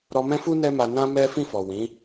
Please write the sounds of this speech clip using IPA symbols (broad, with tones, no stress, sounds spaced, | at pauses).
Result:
ɾ ɔ˧ m ɛ̃˦ f u˦ n ɛ˦ m a˧ n ã˧ m ɛ˦ f ĩ˦˨ f ɔ˨ w ĩ˨˦